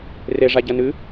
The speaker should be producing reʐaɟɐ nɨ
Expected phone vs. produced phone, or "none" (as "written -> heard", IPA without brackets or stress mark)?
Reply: none